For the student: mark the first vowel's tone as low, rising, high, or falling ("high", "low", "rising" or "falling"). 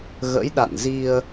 rising